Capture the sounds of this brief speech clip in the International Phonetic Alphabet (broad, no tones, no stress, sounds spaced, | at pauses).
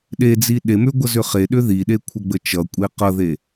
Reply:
ɗ e d͡z i ɗ e m ʏ ɡʷ ʌ z ʏ χ e ɗ ʏ ð i ɗ e kʷʰ ə ɡ͡b ə t͡ʃ ʌ kʷʼ e q ʌ ð e